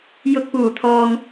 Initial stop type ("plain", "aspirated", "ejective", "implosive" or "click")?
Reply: plain